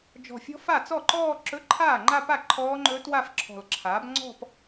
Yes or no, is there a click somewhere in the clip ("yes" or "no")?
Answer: yes